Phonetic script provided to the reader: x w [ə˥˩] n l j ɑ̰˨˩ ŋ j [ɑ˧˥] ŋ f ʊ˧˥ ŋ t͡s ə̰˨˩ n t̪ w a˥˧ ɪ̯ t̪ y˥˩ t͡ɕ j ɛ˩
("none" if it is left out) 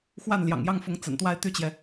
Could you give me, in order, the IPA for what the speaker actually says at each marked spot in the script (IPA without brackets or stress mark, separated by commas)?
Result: a˥˩, ɑ˥˩